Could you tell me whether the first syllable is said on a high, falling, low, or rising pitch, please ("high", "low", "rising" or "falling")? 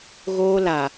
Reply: high